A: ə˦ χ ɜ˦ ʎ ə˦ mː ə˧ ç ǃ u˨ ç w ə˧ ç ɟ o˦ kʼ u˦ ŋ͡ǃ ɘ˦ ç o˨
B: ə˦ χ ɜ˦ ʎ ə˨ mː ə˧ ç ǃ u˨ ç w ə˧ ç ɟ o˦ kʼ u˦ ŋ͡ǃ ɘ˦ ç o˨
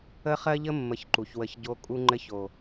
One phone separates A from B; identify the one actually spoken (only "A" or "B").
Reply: A